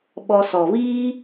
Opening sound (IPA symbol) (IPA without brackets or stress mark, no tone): ɓ